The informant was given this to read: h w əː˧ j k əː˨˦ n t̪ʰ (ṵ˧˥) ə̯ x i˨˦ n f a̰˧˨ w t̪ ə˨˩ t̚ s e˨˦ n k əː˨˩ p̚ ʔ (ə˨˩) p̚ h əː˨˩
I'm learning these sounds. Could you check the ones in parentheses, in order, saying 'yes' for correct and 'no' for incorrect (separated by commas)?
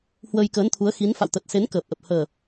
no, yes